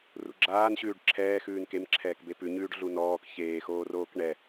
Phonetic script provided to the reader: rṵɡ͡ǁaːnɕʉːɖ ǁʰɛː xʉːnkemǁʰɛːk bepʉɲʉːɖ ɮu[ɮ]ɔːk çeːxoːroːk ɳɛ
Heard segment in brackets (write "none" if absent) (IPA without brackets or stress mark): n